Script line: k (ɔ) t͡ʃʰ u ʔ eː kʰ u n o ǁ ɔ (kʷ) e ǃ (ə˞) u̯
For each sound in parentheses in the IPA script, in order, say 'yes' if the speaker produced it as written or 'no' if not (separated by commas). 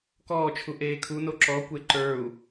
no, yes, yes